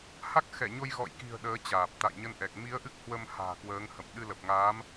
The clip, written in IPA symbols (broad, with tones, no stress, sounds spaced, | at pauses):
h a˦˥ k̚ x ɛ˧˩ ɲ o˧ j ɣ ɔ̰˧˨ j k i̤˨˩ ə̯ ɗ əː˨˦ t͡ɕ aː˨˩ p̚ t̪ a̰˧˨ j ɲ ə˧ n ʔ ɛ˨˩ k̚ m i˨˦ ə̯ ʔ ɨ˦˥ k̚ h w ə˧ m h a̤ː˨˩ k w əː˨˦ ŋ h ə̰˧˨ m ɗ ɨ˧ l ə˨˩ p̚ ŋ aː˨˦ m